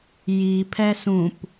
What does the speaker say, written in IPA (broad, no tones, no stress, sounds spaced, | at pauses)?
j i pʰ ɛ s ũ p